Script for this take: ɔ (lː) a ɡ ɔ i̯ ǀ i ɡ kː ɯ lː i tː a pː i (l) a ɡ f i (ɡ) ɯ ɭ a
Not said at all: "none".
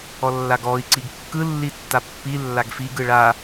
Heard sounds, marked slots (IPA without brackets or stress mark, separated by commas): lː, lː, ɡ